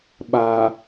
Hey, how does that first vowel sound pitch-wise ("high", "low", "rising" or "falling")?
low